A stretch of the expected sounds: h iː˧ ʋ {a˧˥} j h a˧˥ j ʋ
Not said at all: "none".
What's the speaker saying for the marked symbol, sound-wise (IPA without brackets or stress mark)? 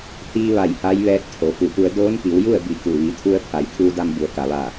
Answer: a˧˩